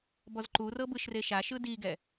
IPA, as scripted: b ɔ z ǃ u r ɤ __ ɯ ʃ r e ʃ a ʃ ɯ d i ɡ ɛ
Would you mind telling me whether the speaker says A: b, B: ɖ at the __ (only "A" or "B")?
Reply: A